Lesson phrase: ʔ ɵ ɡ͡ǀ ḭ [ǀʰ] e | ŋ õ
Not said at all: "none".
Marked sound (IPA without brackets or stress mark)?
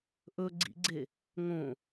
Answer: ɡ͡ǀ